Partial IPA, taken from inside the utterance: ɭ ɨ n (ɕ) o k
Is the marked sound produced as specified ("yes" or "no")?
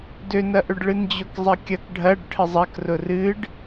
no